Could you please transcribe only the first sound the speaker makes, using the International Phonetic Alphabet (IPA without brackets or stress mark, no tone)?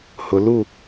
h